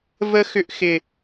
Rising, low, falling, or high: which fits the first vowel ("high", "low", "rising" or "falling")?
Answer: high